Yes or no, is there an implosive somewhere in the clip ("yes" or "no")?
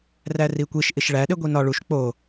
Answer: yes